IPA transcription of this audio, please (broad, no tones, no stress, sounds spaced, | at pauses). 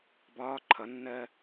b ɒː ǃʰ ʌ nː ɜ